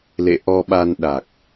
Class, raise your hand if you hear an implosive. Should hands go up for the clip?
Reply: yes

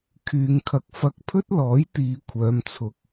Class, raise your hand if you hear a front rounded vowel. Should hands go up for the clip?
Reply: yes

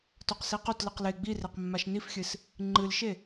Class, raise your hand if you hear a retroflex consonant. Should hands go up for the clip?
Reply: no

